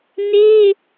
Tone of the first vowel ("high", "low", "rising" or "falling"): high